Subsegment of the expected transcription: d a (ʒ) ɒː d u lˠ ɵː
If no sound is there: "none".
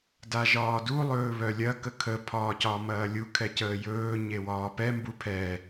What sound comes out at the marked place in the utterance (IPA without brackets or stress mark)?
ʒ